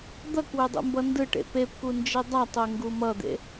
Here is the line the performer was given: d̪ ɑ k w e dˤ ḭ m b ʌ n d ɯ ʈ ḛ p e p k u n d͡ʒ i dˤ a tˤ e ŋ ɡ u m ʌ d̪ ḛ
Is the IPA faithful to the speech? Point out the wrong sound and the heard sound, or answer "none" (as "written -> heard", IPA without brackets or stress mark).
ɑ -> ʌ